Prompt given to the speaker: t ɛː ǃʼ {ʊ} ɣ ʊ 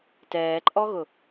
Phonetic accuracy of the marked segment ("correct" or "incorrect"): incorrect